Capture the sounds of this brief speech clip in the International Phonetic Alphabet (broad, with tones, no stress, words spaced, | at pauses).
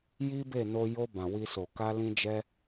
ji˦be˦˨ no˧jo˧ bã˨wi˧so˨ ka˧lĩ˧d͡ʒɛ˧